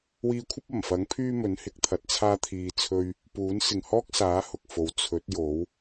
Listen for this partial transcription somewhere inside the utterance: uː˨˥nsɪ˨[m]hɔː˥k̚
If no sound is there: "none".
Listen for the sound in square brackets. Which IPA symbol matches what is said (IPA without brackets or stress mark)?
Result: ŋ